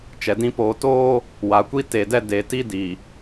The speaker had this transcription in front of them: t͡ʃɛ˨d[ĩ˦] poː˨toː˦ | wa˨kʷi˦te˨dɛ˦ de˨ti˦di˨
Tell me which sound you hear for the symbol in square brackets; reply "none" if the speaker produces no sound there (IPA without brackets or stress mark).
ĩ˦